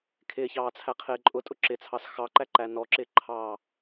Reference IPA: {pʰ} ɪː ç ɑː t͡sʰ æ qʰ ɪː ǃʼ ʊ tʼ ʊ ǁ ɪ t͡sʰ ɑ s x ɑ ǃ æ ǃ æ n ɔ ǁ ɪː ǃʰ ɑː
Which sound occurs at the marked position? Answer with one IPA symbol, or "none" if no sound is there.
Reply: kʰ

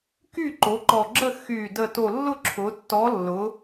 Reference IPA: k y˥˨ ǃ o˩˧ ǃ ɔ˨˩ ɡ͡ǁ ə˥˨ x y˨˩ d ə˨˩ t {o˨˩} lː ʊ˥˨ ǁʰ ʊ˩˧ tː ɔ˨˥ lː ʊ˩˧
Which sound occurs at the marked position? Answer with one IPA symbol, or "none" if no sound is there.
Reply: o˨˩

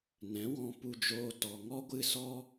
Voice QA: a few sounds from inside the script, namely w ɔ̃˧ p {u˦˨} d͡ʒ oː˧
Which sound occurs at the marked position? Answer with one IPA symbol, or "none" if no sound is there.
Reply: u˧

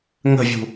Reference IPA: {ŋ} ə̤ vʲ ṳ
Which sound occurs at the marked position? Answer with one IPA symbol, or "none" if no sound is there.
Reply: ŋ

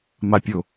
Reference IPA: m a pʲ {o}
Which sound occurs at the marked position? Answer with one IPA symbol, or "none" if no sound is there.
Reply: o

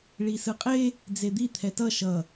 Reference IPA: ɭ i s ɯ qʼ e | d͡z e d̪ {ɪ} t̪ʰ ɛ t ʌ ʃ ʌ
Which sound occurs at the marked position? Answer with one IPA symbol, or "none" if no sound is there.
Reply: i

